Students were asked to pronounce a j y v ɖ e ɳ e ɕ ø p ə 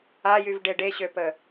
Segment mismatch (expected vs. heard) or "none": ɳ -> ɖ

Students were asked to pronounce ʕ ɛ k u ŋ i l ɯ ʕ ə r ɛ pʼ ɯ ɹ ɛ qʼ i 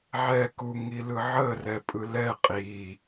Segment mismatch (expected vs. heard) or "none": ɹ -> l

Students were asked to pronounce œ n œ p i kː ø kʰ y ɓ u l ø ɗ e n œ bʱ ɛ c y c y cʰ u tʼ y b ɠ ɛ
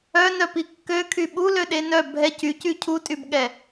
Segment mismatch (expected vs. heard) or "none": none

